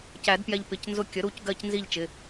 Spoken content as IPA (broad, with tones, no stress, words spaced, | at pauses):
cæ˨˩˦dpjɛ˧ʎ pɪ˩˧˩cnzʊ˧ kʲə˩˥ɾu˩˧˩c ɡɜ˥˨c nzi˥˨ʎt͡ʃɪ˩˧˩